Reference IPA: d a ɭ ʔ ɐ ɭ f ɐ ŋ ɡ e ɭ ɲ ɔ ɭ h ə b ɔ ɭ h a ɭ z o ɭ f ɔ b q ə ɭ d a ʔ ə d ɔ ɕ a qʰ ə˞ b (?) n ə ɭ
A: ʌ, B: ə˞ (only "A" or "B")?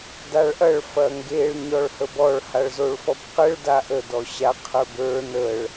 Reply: B